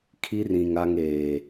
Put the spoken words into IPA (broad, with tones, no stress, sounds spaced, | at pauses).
kʰ i˦ r ĩ˨ ŋ a˦ ŋ eː˨